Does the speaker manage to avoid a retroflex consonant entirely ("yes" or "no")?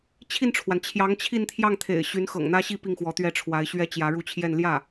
no